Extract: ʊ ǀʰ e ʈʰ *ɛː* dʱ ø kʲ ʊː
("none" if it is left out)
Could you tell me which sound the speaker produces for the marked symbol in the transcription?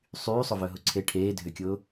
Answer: eː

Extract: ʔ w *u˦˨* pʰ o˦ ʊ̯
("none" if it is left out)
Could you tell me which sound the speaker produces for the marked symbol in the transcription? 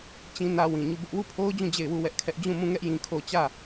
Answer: u˦˨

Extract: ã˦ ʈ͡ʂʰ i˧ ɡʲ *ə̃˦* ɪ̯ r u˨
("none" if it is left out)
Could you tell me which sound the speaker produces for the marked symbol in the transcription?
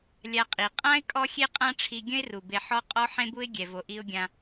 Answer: ə̃˦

